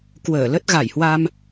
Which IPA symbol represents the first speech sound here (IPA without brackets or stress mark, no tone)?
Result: k